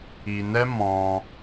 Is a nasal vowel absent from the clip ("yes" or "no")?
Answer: no